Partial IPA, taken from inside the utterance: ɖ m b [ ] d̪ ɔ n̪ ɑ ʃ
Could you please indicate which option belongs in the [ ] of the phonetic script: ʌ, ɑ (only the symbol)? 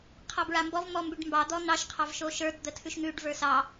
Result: ɑ